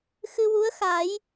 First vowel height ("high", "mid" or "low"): high